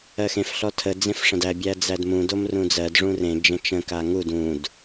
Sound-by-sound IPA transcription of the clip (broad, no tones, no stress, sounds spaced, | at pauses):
ɜ x ẽ f ɬ ɔ tʰ ə d͡z ẽ f ʂ ə̃ d æ bʲ æ d͡z æ d m ũ d o m r ũ d͡z ɜ d ʐ ũ r ẽ d͡ʒ ə̃ t͡ʃ ə̃ k a ŋ u d ũ d